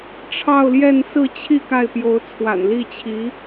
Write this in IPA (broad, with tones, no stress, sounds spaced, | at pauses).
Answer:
ʈ͡ʂʰ ɑ˥˧ ʊ̯ l j ɛ˥˧ n s ɹ̩˥˧ t͡ɕʰ i˥˧ k a˥˩ ɪ̯ p j o˧˥ ʊ̯ t͡sʰ w a̰˨˩ n l i˥˩ t͡ɕʰ i˧˥